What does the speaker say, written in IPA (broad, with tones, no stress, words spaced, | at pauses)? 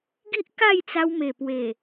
ɡi˦ʔ ka˥˧jt͡sa˧wme˨˩ pwe˨˩